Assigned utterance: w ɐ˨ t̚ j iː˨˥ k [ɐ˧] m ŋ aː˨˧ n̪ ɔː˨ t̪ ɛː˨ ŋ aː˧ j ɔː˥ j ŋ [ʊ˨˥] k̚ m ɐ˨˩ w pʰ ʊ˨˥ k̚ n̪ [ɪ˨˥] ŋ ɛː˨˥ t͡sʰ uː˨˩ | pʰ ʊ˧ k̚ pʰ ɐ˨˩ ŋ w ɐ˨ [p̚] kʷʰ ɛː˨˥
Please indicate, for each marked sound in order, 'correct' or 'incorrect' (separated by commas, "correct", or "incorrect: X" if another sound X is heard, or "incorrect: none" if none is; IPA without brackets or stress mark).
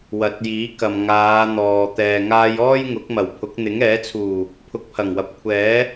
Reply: incorrect: ɐ˨, correct, correct, correct